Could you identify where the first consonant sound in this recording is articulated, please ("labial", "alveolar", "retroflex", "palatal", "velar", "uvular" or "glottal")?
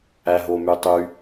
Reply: glottal